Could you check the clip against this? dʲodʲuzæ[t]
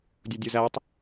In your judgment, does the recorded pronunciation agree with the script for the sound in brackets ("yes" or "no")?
no